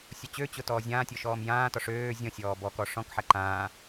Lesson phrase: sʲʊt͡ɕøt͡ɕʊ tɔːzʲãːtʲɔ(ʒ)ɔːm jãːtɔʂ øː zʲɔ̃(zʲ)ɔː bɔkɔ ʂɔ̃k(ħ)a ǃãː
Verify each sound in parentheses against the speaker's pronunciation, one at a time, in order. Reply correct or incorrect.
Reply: incorrect: ʃ, incorrect: sʲ, correct

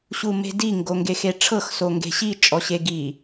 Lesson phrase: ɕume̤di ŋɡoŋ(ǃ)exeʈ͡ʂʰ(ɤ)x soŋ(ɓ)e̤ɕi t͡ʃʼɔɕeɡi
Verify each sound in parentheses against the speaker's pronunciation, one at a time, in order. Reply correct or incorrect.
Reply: incorrect: ɡ, correct, incorrect: ɡ

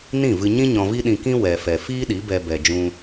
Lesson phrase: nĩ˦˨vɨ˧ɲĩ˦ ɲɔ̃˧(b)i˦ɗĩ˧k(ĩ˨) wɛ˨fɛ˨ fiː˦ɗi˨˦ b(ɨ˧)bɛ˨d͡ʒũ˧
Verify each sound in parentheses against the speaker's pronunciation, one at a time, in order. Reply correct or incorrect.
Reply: incorrect: v, incorrect: ĩ˦, incorrect: ɛ˧

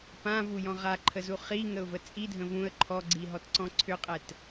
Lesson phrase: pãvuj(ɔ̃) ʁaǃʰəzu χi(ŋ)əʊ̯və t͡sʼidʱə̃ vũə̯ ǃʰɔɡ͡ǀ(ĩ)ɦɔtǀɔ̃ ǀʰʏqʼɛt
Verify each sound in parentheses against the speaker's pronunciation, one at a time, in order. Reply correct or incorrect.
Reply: correct, correct, incorrect: i

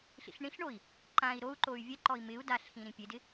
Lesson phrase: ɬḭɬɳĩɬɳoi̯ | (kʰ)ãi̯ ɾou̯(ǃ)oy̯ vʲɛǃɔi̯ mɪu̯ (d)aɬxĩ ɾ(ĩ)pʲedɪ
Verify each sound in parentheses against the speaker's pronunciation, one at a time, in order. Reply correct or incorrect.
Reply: incorrect: ǃ, correct, correct, correct

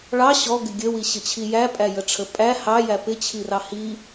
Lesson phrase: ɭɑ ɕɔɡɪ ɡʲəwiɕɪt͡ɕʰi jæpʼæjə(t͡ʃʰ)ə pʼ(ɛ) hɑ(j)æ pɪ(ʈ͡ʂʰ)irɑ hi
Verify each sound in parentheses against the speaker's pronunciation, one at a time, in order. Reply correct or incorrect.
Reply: incorrect: ʈ͡ʂʰ, incorrect: æ, correct, incorrect: t͡ɕʰ

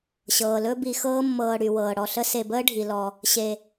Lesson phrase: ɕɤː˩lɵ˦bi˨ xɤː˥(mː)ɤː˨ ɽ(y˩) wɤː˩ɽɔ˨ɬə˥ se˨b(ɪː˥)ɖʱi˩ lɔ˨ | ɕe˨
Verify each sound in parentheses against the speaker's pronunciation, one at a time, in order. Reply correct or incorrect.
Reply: correct, correct, incorrect: əː˥

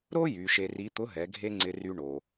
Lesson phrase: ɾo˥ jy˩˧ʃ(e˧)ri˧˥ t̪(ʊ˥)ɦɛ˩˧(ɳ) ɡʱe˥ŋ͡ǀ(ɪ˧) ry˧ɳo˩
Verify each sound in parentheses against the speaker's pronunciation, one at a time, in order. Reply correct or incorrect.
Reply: correct, incorrect: ʊ˧˥, incorrect: none, correct

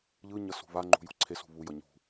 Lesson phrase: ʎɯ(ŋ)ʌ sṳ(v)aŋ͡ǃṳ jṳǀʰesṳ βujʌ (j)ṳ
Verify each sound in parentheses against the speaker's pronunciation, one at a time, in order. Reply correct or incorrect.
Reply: incorrect: ɲ, incorrect: β, incorrect: ɲ

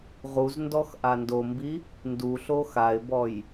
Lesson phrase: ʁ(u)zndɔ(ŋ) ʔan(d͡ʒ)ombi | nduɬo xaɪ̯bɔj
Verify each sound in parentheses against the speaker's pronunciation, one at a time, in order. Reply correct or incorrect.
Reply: correct, incorrect: x, incorrect: d

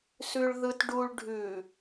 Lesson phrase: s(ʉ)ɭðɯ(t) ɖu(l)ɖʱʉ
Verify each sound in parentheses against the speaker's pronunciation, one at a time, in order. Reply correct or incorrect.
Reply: correct, correct, incorrect: ɭ

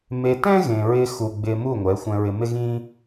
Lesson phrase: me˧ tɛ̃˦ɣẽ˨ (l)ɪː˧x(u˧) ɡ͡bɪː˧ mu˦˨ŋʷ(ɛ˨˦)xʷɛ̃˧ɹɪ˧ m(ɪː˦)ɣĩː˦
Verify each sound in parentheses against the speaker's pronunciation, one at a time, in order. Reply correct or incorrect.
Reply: incorrect: ɹ, incorrect: u˨, correct, incorrect: ɪ˦

